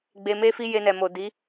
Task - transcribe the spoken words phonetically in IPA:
ɡ͡b e˧ m e˦ f i˦ j e˧ n ɛ˨ m o˨ d i˨˦

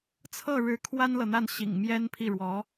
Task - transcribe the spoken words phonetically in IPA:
t͡sʰ ɤ˥˩ ɻ ɻ̩˧˥ kʰ w a˥ n l ɤ˨ n̪ a˥˩ n ɕ ḭ˨˩ ŋ m j ɛ˥ n pʰ i˥˩ ɻ w ɔ˧˥

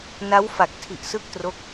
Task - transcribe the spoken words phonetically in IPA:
n a˦˥ w f a˨˩ k̚ tʰ i˨˩ ʔ s ɯ˥˩ k̚ t r o˦˥ k̚

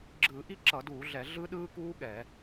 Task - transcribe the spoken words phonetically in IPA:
ɡ͡ǁ ɯː˧˩˧ ʔ i˦˥ ǁ ʌ˧˩˧ d uː˧˩˧ ɮ ɛ˧˩˧ ɮ ɯ˦˥ ɗ ɯː˦˥ k uː˦˥ ɠ ɛː˧˩˧

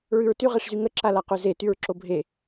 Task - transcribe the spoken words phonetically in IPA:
ɹ ʉ ɹ t y ʁ e ʂ z y ŋ ə ǁ a l a q ʉ z e t y ɹ ǁ o bʱ e

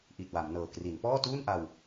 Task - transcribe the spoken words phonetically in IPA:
ʔ i˨˩ t̚ w a˩˦ m n ɤː˨˩ k r i˩˦ n p ɔː˥˩ t uː˥˩ n ʔ a˧ w

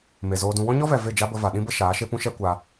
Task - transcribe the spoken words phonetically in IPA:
m e˨ z oː˧ d ũ˧ w ɔ̃˦ ɲ ɔ˦ v ɛ˨ v e˦˨ d͡ʒ a˦ b ə˧ v a˨ ɗ ĩ˦ b ə˦ ʃ aː˨˦ ʃ e˦ p ũ˦ ʃ ɛ˦ kʷ a˧

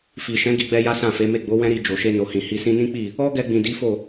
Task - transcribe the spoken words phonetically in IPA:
f i˨ ʃ ɛ̃˨˦ ɡ i˧ ɡ͡b ɛ˧ j a˦ s ã˦˨ f e˨˦ m e˦˨ ɡ͡b o˨˦ w ɛ̃˦ ɾ i˧ d͡ʒ o˨ ʃ e˧ n o˨ h ĩ˨ h i˨ s ĩ˧ n ĩ˦ k͡p i˦˨ | ɔ˦ ɡ ɛ˧ ɡ͡b ĩ˨ d i˨˦ f o˦˨

